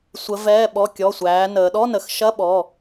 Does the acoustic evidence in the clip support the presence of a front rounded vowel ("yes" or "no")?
no